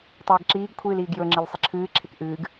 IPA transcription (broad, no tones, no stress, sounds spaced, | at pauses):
tˤ əː ɡ ǁ iː ɡ kʷʰ ɨː l iː ɡ j ɵ ŋ͡ǁ i l sˤ ə ǁʰ ɨː ǁʰ e k ʔ ɨː ɡ